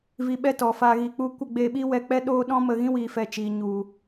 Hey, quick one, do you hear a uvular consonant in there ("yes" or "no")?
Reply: no